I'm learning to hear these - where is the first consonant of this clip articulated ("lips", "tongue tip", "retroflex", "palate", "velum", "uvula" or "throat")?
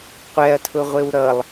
uvula